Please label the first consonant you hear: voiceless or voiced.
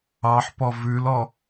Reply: voiceless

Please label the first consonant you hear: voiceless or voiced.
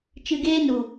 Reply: voiceless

